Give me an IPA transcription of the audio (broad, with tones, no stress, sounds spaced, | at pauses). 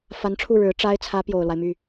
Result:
f a˧˥ n ʈ͡ʂʰ u˥˩ ɻ ɻ̩˧˥ ʈ͡ʂ a˥ ɪ̯ t͡sʰ ä˧˥ p j o˨˩ ʊ̯ l w a˦ ɪ̯ m y˥˩